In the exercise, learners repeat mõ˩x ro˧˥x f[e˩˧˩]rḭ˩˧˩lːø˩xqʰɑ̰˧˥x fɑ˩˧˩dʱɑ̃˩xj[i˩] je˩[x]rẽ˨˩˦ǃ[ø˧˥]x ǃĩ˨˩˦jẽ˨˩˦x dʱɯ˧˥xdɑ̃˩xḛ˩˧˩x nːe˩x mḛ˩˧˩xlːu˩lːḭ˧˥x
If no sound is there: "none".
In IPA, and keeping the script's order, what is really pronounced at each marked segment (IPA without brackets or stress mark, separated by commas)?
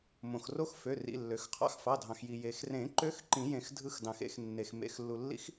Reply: ø˩˧˩, i˩, x, ø˧˥